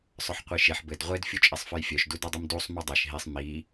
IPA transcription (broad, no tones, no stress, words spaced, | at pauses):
sˤœħqʷiʃeħ bɘd ʁʷed fʲut͡ʃʼesˤfœjfʲœʃ dudedˤimdusˤ mudˤeʃ ɦisˤ mi